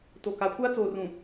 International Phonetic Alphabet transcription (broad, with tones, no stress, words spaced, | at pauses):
to˨ka˨ kʷaː˦t͡soː˨ rũ˨